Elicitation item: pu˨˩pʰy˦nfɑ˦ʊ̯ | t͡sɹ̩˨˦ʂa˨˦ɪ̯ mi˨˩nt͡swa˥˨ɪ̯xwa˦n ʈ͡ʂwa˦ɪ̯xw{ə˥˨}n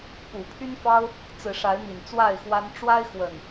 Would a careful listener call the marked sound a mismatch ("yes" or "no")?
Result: yes